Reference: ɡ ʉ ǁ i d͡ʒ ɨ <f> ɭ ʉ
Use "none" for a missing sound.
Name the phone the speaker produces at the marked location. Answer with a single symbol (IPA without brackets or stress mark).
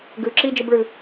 b